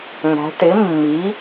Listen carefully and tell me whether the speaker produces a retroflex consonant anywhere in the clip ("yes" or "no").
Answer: yes